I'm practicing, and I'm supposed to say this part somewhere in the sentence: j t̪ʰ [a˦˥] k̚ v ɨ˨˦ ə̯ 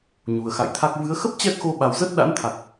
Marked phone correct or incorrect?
correct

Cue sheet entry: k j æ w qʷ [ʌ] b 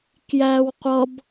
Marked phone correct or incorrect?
correct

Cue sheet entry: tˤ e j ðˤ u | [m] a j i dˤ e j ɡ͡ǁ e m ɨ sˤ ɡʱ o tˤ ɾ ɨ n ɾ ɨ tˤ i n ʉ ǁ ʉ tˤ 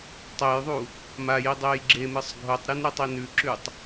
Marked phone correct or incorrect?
correct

